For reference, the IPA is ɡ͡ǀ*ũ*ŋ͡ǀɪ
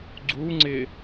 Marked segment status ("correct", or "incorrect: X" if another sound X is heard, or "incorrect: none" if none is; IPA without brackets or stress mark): incorrect: u